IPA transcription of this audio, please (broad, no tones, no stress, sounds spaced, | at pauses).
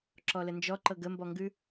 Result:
ǁ ɔ l ə n d͡ʒ ɔ ǃ ɤ ɡ ə m b ɔ ŋ ɡ ʉ